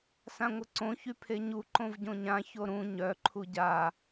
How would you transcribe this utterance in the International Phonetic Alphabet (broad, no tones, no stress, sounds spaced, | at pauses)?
s ã ŋʷ ə ǀ õ ç y pʰ e ɲ u ǃ õ v ɟ õ ɲ ã ç o ɾ ũ ɲ œ ǃʰ u ɟ a